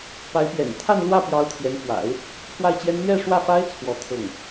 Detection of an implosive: absent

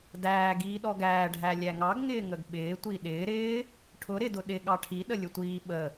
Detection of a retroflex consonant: present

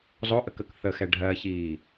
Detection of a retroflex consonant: present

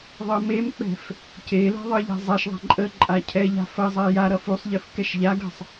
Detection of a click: present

